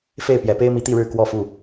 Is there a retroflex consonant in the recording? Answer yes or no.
yes